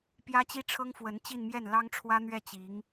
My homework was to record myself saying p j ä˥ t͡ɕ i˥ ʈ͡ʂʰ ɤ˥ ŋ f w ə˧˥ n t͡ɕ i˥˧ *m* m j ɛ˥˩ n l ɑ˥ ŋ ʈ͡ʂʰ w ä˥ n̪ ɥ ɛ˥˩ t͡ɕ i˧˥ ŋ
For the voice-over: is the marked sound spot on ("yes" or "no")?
no